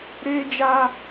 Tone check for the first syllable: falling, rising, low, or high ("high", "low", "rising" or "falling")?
high